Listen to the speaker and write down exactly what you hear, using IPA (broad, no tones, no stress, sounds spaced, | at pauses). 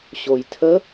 ɕ o j tʰ ə